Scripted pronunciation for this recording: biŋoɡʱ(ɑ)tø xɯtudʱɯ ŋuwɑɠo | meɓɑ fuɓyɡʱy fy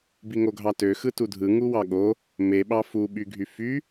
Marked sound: correct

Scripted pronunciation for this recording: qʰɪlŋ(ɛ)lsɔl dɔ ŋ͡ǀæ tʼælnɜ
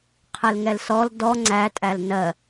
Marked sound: correct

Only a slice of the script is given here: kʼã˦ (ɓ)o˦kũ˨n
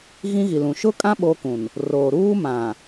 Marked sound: correct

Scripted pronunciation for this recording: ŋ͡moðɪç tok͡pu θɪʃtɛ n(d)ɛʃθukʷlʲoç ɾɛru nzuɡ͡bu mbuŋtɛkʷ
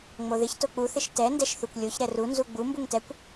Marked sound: correct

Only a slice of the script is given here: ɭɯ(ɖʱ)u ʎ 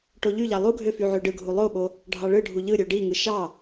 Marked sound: correct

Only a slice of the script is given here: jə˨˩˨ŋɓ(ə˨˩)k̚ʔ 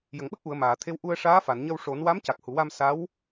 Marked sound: incorrect: ə˦˥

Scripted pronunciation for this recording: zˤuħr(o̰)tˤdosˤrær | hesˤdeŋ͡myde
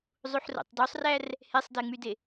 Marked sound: correct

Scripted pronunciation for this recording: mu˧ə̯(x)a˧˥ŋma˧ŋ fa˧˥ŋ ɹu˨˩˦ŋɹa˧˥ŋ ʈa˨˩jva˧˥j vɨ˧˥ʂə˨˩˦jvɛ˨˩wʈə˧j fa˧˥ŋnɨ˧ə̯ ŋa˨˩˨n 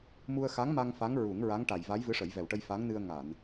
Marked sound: correct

